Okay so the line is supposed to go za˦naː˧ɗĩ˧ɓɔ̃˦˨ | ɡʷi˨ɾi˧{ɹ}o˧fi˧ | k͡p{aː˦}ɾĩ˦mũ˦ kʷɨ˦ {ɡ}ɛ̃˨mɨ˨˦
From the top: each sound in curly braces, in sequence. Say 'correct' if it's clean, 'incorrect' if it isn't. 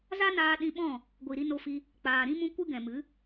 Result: incorrect, incorrect, correct

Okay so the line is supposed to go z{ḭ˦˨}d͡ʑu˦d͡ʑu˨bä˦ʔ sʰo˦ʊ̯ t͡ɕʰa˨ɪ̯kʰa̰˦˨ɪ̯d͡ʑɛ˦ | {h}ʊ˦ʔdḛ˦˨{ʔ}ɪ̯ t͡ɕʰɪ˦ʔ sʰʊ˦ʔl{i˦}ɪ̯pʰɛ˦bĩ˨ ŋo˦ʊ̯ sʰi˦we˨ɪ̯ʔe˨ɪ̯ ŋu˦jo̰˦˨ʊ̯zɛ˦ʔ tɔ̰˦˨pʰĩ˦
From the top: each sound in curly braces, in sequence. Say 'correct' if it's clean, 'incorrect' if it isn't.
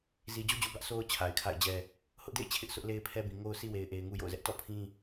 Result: incorrect, correct, incorrect, incorrect

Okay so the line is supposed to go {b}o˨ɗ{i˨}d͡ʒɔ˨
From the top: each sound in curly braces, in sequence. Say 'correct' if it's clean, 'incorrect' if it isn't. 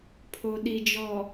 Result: incorrect, correct

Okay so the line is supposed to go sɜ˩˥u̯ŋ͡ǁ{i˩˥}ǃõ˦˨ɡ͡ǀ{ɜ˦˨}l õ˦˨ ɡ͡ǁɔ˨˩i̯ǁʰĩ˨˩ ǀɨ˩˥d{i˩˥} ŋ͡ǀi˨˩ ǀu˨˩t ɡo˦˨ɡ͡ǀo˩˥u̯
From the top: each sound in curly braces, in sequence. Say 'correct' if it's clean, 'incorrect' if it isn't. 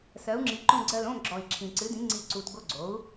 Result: correct, correct, incorrect

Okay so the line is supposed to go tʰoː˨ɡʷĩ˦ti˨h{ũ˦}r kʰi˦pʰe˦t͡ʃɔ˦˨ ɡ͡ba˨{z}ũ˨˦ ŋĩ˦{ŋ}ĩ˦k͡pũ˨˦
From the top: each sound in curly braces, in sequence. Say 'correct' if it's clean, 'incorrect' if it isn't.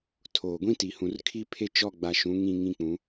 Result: incorrect, incorrect, correct

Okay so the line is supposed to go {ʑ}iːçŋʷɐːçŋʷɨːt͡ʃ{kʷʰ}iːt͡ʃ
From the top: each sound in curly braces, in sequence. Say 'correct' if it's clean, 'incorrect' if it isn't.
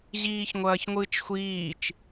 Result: correct, incorrect

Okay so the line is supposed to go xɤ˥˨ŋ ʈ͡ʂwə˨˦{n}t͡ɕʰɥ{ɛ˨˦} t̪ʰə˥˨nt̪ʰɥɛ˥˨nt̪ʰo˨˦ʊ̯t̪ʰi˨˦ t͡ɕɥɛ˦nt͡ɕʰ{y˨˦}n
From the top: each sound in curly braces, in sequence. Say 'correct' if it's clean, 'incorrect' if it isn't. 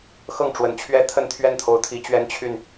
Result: correct, incorrect, incorrect

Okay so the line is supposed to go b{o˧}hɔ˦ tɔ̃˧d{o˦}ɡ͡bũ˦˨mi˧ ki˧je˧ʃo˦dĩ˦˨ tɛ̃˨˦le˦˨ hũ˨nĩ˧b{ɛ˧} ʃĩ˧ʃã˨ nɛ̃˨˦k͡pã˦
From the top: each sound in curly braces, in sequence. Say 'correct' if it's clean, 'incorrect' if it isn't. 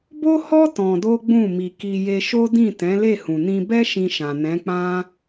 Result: incorrect, correct, incorrect

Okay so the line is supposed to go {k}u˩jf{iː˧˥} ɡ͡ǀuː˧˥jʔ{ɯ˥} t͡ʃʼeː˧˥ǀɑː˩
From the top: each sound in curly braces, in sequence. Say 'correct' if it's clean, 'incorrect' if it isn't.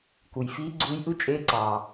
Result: correct, correct, correct

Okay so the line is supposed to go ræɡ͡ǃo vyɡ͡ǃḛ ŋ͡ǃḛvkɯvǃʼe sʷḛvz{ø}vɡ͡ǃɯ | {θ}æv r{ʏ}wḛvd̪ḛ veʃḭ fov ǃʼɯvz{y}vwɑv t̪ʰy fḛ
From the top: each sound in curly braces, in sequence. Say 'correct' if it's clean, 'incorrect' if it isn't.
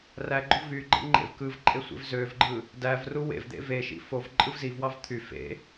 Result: correct, incorrect, incorrect, incorrect

